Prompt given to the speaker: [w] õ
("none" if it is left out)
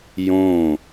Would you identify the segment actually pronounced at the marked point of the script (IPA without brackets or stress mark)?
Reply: j